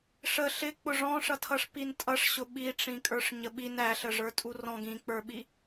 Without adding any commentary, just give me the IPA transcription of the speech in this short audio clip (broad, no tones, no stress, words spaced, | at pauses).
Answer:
ʂə ɬɪk͡pʊ ʐɔ̃ʂʌtʰʌʂ pintʼʌʂɕʊ ɓiʈ͡ʂĩ kʼə˞ʂɲəɓin æɬəʐə˞tʼu rɔ̃ ɡĩk͡pə˞ɓi